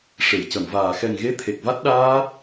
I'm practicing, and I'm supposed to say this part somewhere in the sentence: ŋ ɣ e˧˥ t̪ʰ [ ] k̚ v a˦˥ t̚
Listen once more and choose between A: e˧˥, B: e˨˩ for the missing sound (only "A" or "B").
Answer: B